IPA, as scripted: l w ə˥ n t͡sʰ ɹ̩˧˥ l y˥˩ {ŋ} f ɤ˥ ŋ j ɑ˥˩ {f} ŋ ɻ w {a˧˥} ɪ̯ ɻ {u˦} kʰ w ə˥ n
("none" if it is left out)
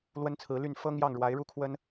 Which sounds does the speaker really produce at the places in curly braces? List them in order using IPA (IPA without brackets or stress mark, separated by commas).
n, none, a˧˥, u˥